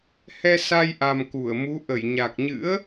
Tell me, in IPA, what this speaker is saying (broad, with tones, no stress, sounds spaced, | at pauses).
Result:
h ɛ˧ s a˧ j ʔ a˨˩ m k u˧˩ ə̯ m u˨˦ ʔ ə˧˩ j ɲ a˨˩ k̚ ɲ ɨ̰˧˥ ə̯